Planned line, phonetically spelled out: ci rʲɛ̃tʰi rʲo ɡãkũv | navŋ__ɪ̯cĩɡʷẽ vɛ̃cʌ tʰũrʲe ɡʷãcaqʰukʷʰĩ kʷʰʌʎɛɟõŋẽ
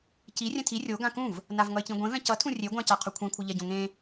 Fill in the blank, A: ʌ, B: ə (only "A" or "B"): A